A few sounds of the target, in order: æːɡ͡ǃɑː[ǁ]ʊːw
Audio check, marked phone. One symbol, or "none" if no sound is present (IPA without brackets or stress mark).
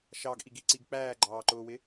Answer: ǃ